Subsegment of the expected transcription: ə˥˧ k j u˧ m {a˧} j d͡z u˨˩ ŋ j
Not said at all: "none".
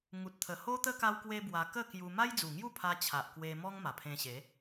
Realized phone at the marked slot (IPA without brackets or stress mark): a˦